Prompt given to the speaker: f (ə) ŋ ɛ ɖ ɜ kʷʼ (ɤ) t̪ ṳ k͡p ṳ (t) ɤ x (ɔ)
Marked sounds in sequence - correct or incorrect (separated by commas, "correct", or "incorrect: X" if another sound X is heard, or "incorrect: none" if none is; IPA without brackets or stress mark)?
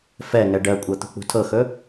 incorrect: ɛ, correct, incorrect: tʰ, incorrect: ɵ